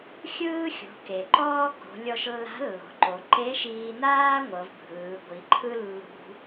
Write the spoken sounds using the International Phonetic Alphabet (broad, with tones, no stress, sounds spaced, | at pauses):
xʲ ɯː˥ xʲ o̤˩˧ k e˩ ǃ ɔː˥ k o̤˩˧ lʲ ɔ˧ ʃ lː a̤˧˥ lː o̤˩˧ ǃ o˩˧ ǃ e˧˥ ʃ iː˧ n aː˥ ŋʷ ɤ˩˧ v bʱ ɯː˩˧ ɡʷ i˩˧ ǃʰ ɯ˥ lː ṳ˧